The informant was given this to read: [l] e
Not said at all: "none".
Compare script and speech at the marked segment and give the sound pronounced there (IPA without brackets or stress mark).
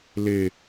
l